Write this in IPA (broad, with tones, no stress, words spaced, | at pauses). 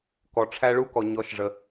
kɔ˩ʈ͡ʂʰæ˧ ɭu˧˥kɔ˩ ɲɔ˩˧ʃʐə˩